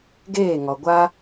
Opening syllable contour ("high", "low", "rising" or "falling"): falling